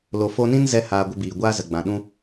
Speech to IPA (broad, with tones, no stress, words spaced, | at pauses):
lo˨fo˧nĩ˦n zɛ˦haː˧ ɡʷə˧biː˨ ɡʷaː˦zə˨ɡ͡bã˨ɗũ˦